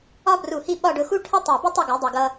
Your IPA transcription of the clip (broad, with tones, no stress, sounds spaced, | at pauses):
ɒ˥ b r u˧˩ h i˥˧ ɓ ɒ˥˧ ɖ ʊ˧ x u˥ ʈʰ ə˥ tˤ æ˧˩ b ɪ˥ tˤ ʌ˥˧ ɡ u˩˧ dˤ ʌ˧˩ ɡ ʌ˧